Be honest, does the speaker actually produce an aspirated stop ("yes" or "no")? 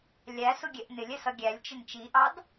no